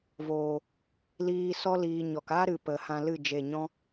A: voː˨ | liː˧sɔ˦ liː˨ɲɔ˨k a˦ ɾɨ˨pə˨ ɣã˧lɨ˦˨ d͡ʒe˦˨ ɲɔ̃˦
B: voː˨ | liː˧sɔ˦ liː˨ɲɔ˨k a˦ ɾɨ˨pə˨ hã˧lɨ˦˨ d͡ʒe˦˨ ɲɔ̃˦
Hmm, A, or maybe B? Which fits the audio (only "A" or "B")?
B